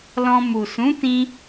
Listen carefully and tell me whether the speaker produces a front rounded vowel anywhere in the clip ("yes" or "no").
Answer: no